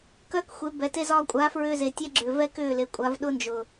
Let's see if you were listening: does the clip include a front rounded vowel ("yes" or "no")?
yes